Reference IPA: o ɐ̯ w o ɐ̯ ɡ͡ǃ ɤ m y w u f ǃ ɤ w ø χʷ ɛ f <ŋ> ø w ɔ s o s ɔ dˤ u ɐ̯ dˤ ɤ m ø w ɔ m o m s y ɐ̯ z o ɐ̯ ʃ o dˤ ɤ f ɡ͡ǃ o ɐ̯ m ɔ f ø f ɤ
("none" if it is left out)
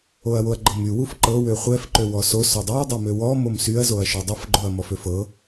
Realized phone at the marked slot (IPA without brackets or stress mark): ǃ